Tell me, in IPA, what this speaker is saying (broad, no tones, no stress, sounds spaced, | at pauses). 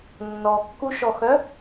nː ɔ kː u ʃ ɔ x œ